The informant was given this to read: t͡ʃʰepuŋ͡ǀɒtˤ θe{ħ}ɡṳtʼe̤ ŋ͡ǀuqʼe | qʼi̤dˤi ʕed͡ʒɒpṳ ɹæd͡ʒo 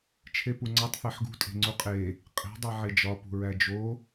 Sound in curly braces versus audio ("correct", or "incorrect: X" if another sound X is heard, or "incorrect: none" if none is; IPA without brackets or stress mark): correct